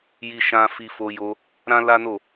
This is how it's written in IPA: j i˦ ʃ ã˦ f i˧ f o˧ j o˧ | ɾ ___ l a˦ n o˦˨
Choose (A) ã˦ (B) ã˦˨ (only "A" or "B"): A